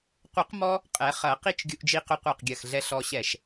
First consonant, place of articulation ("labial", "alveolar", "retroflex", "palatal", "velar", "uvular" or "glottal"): uvular